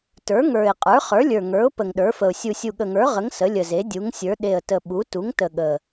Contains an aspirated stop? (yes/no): no